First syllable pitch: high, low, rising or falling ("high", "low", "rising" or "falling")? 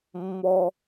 high